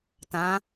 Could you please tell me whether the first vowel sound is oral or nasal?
nasal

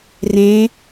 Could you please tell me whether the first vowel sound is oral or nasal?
nasal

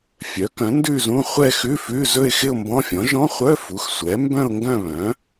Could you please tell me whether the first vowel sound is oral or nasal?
oral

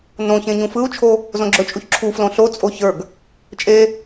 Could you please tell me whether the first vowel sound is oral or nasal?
nasal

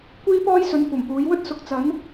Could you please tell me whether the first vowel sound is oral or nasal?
oral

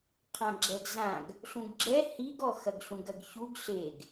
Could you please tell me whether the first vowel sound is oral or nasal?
nasal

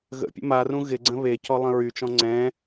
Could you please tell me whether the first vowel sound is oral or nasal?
oral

